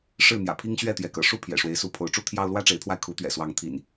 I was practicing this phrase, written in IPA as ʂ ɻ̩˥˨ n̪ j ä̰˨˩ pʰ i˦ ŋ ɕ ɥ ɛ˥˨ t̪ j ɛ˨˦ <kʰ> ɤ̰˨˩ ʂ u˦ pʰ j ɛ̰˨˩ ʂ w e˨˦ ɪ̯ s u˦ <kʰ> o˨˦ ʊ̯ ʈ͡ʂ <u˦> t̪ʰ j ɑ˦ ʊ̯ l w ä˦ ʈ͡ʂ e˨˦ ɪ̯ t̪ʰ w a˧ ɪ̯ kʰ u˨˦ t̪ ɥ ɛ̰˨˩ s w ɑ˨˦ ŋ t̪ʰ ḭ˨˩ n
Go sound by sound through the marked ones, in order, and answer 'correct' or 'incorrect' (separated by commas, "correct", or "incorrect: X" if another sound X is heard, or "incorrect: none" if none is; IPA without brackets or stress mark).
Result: incorrect: k, incorrect: pʰ, correct